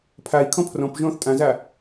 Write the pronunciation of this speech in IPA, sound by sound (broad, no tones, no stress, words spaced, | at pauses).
pʰai̯ kʰɔ̃pʰrɔ̃pʒɔ̃ːθ tʼãza